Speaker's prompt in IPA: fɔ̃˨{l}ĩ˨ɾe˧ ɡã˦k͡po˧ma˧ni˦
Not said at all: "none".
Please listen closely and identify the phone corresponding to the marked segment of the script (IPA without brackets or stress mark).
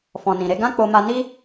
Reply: n